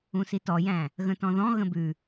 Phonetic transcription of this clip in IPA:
ũ s i t ɔ j æ̃ | ɣ ə̃ t ɔ̃ ð ɔ̃ ɣ ə̃ b ʉ

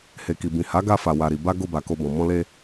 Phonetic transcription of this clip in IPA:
h e˨ k i˨ b ĩ˨ h a˨˦ ɡ a˧ f a˨ w a˨ ɾ i˨ b a˧ ɡ o˧ b a˨ k o˧ b ɔ̃˨ m ɔ̃˧ l e˧

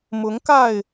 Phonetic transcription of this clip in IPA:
m ʊ˨˦ ŋ k a˥˨ ɪ̯

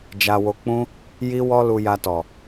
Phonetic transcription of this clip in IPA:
d͡ʒ a˧ w o˧ k͡p ũ˦ | j i˦ w ɔ˦ l u˧ j a˧ t ɔ˨

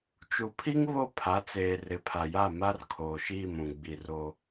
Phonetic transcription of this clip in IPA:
t͡ʃ u˨ pʰ i˦ ŋ β o˦˨ pʰ a˨˦ t͡s eː˨ r ɪ˨ pʰ a˨ j a˦˨ m a˦ r kʰ oː˨ ʃ iː˦˨ m ũ˨ ɡ͡b i˨ r o˦

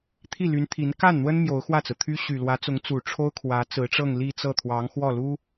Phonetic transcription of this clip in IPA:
t̪ʰ i˥˩ l y˧˥ n t̪ʰ i˧˥ n k a˥˩ n n̪ w ə˥ n m j o˧˥ ʊ̯ x w ä˥˩ t͡s ɹ̩˩ t̪ʰ y˥ ɕ y˨˩ l w ä˧˥ t͡s ʊ˧˥ ŋ t͡s u˨˩ ʈ͡ʂʰ o˥ ʊ̯ kʰ w ä˧˥ t͡s ɹ̩˧˥ ʈ͡ʂ ɤ˥˧ ŋ l i˥˧ t͡s ɤ˥˩ t̪ʰ w ɑ˧˥ ŋ x w ɔ˥˩ l u˥

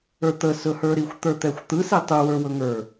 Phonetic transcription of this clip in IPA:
ə˞ t̪ ə s ɵ h ə˞ ɾ i xʷ t̪ ə˞ t̪ ɛ xʷ t̪ ɯ s i tˤ ɯ w ə˞ w ɵ ŋ ə˞

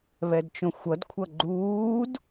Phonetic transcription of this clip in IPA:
β ɛ d t͡ʃ õ xʷ ʌ d kʷʰ ʌ ɡ͡ǃ uː d

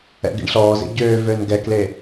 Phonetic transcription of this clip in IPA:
ɛ̰ ɡ ḭ ɳ ɬ ɔː z ḛ ɟ øː v ø n ɡ ɛ k l e

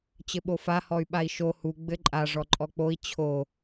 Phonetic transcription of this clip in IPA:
t͡ɕ ɘ ɓ o f a h ɔ y̯ ɓ a i̯ ʃ o h u ɡ͡b ɘ ǃʼ a ʐ ɔ ǃʼ ɔ k͡p o i̯ t͡ɕʰ o

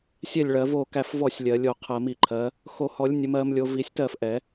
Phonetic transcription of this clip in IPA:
sʲ ɛ˥˩ lʲ ɭ ɜ˨˩˦ v o˥˩ k æ˥˩ f v ɔ˥˩ sʲ lʲ ɜ˨˩˦ lʲ o˨˩˦ qʰ ɜ˨˩˦ m i˨˩˦ ǃʰ ɜ˨˦ | x o˨˩˦ h ɔ˨˩˦ lʲ nʲ ə˨˦ m ɜ˨˦ m lʲ o˨˦ v i˨˩˦ sʲ t ɜ˥˩ f ʔ ɛ˨˩˦

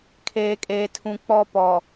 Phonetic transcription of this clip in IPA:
kʰ eː˨ kʼ eː˨ tʰ ũ˨ k͡p ɔ˦ p ɔ˨

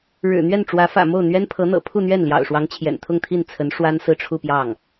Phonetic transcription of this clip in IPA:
ɻ ɻ̩˨˩ n̪ ɥ ɛ˥˩ n ʈ͡ʂ w ä˧˥ f ä̰˨˩ m o˥˩ ʊ̯ n̪ ɥ ɛ˥ n pʰ ɤ˧˥ n̪ ɤ̰˨˩ pʰ u˥˧ n̪ ɥ ɛ˥˩ n l j ɑ̰˨˩ ʊ̯ ʂ w ɑ˧˥ ŋ t͡ɕʰ j ɛ̰˨˩ n t̪ʰ ʊ˥˧ ŋ t̪ʰ i˥˩ n t͡sʰ ə˧˥ n ʂ w a˥ n s ɹ̩˥˧ ʈ͡ʂʰ u˥˧ p j ɑ˥˩ ŋ

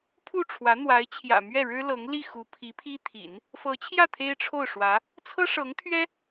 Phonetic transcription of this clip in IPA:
pʰ u˥˩ ʈ͡ʂʰ w ä˧˥ n̪ w a˧˥ ɪ̯ t͡ɕʰ j ä̰˨˩ m ɥ ɛ˥˩ ɻ ɻ̩˥ l ɤ˧˥ ŋ l i˥˩ x u˧˥ pʰ i˧˥ pʰ i˥ t̪ʰ ḭ˨˩˦ n | f ɤ˧˥ t͡ɕʰ j ä˥˩ t̪ʰ e˥ ɪ̯ ʈ͡ʂʰ o˥˩ ʊ̯ ʂ w ä˧˥ | t͡sʰ ɤ˥ ʂ ɤ˧˥ ŋ t̪ʰ ɥ ɛ˥

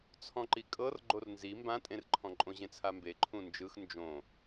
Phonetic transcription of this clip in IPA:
t͡sʰ ɔ̃ ǃ i kʼ ɤ r ɡ͡ǃ o r n z i m b ã tʼ ẽ r ǃʰ ɔ̃ ǃʼ õ ʑ ẽ t͡sʰ a m b e ǃʰ ũ n d͡ʒ ɯ x n d͡ʒ õ

